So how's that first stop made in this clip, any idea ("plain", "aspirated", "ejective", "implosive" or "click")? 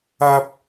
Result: plain